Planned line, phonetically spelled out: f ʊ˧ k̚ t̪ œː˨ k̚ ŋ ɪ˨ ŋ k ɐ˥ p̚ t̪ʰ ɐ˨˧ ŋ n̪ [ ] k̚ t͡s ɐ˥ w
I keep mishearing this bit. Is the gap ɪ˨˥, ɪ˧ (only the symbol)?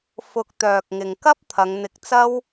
ɪ˧